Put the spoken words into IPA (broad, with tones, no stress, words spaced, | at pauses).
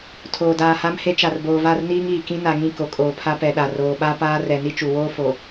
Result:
tʰoː˨daː˨ha˦mhe˦ t͡ʃa˨rboː˨va˦˨rniː˦ŋ iː˨kĩ˦ na˨ŋĩ˦˨ ko˨kʼoː˨pʰa˦ pɛ˨ɗa˨ roː˨ɓa˦ paː˦rɛ˨ ni˦t͡ʃu˨ woː˦fo˨